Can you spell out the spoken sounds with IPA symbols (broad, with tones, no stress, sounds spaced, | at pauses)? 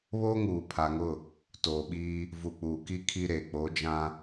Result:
β oː˦ ŋ uː˨ pʰ a˨ ŋ ʊ˦˨ | t oː˨ ɓ iː˦ | v u˨ k͡p uː˨ k i˦ kʰ i˦ ɾ e˨ k͡p o˨˦ d͡ʒ ã˦